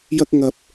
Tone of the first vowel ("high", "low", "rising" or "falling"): high